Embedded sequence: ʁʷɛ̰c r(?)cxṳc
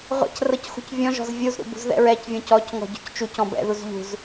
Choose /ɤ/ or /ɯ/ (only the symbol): ɤ